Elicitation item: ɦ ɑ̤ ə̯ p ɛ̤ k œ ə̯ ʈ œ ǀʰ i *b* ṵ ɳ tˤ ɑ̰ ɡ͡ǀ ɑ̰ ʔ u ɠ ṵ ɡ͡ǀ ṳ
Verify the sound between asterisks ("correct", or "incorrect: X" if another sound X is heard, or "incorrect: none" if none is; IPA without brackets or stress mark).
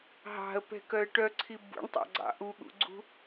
correct